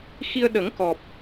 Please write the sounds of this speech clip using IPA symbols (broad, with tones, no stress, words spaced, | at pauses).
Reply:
xi˧ə̯ ɗə˨˩˦ŋkɔ˨˩p̚